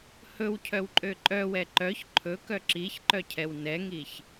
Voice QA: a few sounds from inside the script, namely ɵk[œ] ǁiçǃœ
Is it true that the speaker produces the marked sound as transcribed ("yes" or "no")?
yes